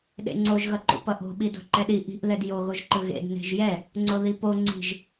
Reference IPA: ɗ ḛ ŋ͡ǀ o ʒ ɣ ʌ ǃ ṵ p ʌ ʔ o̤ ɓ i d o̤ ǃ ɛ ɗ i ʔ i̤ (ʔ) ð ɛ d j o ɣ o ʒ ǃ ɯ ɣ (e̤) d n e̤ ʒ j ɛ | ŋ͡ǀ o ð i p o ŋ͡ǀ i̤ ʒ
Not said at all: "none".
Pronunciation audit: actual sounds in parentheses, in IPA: ʔ, ḛ

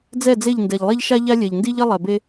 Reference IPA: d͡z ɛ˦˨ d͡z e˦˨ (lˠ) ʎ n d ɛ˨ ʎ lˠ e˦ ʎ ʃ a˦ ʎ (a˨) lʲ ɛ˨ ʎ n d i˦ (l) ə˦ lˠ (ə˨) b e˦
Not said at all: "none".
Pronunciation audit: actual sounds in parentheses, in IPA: none, a˦, ʎ, ɛ˨

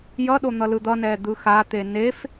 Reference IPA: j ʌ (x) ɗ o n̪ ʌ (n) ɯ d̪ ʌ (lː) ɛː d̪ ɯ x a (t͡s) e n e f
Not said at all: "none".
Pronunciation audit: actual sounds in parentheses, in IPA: none, l, n, t̪

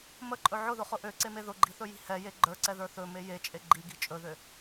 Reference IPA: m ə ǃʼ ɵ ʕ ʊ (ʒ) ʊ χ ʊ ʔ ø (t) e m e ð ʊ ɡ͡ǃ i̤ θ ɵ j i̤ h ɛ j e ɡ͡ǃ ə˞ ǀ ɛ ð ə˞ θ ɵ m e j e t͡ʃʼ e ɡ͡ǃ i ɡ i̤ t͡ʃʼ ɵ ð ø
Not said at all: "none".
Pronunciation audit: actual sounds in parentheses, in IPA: ð, ǀ

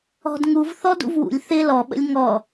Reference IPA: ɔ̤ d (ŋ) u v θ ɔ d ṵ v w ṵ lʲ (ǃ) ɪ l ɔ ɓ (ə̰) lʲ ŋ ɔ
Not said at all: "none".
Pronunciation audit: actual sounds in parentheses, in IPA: ŋ, θ, ə̰

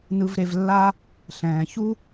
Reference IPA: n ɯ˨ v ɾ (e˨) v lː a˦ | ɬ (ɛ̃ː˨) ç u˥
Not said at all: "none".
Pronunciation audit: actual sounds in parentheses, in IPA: e˨, ɛ̃ː˩

